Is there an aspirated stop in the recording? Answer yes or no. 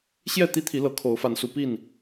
yes